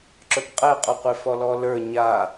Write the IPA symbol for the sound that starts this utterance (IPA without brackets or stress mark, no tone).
ǁ